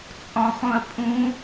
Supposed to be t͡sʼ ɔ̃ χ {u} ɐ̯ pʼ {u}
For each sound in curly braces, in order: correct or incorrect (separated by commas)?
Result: incorrect, incorrect